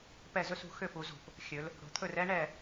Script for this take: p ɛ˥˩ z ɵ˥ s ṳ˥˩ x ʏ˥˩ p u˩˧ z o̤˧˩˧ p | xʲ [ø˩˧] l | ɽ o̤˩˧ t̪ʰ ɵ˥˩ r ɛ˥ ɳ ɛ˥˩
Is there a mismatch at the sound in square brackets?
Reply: yes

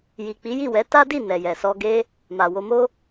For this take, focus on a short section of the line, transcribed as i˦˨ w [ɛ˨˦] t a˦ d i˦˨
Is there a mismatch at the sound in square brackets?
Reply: no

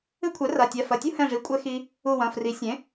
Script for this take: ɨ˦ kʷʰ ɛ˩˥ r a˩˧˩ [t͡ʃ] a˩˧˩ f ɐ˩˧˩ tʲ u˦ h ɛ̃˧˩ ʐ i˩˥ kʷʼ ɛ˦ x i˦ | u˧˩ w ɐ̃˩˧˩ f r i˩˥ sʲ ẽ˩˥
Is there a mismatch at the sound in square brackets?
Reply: yes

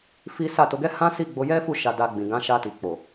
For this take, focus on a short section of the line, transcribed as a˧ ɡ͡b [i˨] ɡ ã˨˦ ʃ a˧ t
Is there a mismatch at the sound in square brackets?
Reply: yes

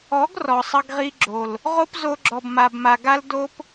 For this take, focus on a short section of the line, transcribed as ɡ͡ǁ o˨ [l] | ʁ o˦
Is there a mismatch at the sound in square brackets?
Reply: no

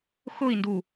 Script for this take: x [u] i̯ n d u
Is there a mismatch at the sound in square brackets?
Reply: yes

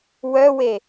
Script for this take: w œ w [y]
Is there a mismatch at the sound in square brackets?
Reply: yes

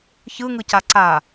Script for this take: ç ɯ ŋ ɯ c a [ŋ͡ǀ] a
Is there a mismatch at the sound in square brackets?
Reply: yes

